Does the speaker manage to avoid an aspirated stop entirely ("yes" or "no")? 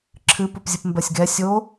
no